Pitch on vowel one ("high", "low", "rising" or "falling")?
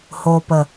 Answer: low